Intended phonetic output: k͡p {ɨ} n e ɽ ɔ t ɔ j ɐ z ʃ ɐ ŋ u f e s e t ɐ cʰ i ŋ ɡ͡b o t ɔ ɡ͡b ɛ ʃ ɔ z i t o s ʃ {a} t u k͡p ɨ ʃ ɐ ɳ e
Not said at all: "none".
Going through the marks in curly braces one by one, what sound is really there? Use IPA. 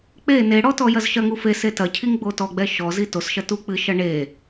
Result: e, ɐ

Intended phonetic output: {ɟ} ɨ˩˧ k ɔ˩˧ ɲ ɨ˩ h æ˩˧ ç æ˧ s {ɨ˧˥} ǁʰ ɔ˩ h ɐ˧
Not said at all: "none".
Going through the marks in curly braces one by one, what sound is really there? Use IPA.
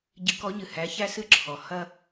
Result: ɟ, ɨ˧

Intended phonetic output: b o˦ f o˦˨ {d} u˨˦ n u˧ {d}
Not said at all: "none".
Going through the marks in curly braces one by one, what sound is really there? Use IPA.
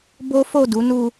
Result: d, none

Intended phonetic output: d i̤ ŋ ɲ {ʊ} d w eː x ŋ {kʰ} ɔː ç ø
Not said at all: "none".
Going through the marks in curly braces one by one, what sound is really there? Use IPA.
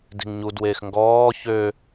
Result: u, ɡ

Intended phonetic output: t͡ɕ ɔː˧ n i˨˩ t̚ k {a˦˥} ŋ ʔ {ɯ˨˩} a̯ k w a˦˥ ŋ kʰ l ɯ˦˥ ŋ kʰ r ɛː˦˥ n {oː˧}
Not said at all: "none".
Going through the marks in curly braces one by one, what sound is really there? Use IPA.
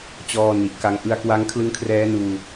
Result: a˦˥, ɯ˧, uː˧

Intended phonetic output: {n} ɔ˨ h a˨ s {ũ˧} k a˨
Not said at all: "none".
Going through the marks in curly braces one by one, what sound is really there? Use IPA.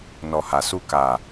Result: n, u˧

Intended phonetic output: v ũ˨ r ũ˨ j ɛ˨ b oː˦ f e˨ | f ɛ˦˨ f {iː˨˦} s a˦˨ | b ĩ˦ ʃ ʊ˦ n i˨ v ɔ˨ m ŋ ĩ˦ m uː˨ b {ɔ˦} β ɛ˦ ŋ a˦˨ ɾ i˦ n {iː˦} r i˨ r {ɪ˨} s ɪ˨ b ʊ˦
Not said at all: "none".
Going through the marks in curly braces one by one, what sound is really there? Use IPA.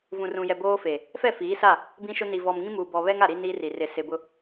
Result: iː˨˦, ɔ˨, iː˦, ɪ˨

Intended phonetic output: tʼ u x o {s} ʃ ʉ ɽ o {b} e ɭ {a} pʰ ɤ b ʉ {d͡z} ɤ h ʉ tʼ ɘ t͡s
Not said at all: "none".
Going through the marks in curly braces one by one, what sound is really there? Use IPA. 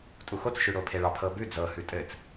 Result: t͡s, pʰ, ɑ, d͡z

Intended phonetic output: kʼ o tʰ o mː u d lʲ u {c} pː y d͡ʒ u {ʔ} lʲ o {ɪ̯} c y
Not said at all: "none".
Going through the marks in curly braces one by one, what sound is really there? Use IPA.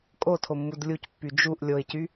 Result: c, ʔ, ɪ̯

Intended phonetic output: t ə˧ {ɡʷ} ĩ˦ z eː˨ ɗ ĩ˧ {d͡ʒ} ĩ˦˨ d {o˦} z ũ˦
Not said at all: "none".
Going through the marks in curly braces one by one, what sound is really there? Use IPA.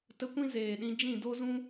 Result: kʷ, d͡ʒ, o˦

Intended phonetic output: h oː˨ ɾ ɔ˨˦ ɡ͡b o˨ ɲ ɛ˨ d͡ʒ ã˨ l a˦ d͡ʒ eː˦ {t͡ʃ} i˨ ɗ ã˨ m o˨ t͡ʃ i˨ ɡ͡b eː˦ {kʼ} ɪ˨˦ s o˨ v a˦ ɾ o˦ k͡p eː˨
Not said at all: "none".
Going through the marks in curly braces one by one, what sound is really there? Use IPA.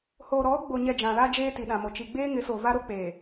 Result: t, ŋ

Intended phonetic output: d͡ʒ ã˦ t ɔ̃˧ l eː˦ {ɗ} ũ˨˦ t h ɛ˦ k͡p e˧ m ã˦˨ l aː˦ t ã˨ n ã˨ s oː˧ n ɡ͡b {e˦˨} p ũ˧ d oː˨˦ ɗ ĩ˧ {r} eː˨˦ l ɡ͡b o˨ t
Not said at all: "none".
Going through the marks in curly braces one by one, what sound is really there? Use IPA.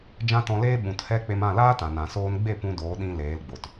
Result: ɓ, e˦˨, l

